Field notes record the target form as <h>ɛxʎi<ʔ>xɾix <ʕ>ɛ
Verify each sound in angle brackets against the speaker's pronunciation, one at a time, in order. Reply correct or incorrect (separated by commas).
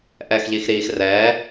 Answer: incorrect, incorrect, incorrect